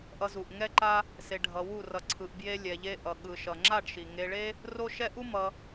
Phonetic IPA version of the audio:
ʔ ʌ˧ z u˨ ʔ ŋ ɛ˦ ǃ a˦ | s e˧ ɖʱ ʌ˧ w u˦˨ r ʌ˨ ǀʰ ɯ˨ ʔ b j e˦ lʲ ɛ˧ ʎ e˦ ʔ ʌ˨ ɠ ɯ˨ ʃ ʌ˨ ŋ͡ǁ a˦˨ ɖ ʃ i˨ ŋ e˧ ɭ e˦ | r o˦ ʃ ɛ˦ ʔ u˦ m ʌ˧

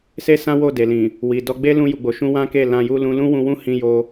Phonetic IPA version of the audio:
s e˦ s ã˦ w o˦˨ d e˨ l ĩ˨ | w i˨ d ɔ˧ ɡ͡b e˦ l ũ˧ j u˨ ɡ͡b o˨ ʃ ũ˧ w ã˦ k e˦˨ l ã˧ j u˦ l ũ˧ l ũ˦ w ũ˧ w ũ˦ h ĩ˧ j o˧

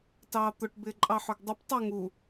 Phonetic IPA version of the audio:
t ɑː t̪ ʊ ʈ b ɪː ǃʼ ɑ ħ ʊ ɡ dˤ ɪ p tˤ ʊ ŋ u

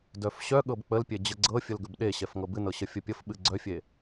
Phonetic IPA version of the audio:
d œ f ɕ œ ɠ ɤ b k͡p ə l pʲ e d͡ʑ ə ɡ͡ǀ ɤ fʲ ə l ɡ ə b ɗ e ɕ ɛ f ŋ ɤ b ɨ n ɤ ɕ ə fʲ ə pʲ ə f ɓ ɨ ɡ͡ǀ œ fʲ e

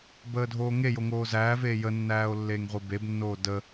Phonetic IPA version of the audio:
b əː dʱ oː ŋ e j o ŋ oː z æː v eː j ə nː æː o̯ lː eː ŋ ʁʷ i b e b nː oː d ə

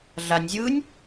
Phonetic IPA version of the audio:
ɮ a nʲ zʲ ɯː nʲ

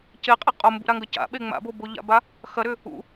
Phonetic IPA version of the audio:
c e qʼ e qʼ o m b ṵ ɾ a ŋ ɡ ɐ c a̰ ɓ e ŋ͡m a̰ b o b o ʎ a̰ b a | x ɐ ɾ ʏ | ṵ

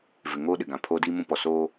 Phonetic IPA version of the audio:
v ɪ˨ ŋ oː˦ ɗ ɪ˨ ɡ ã˨ pʰ oː˦ d iː˦ m ũ˦ p ɔ˨ s oː˦

